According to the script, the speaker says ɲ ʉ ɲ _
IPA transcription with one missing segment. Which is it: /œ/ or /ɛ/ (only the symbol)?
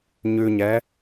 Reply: ɛ